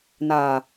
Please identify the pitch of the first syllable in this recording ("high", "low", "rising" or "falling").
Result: low